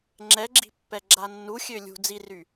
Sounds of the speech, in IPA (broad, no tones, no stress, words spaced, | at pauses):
ŋ͡ǁɛɡ͡ǁi̤ pːɛɡ͡ǁanːuxʲø lʲṳ d͡ziry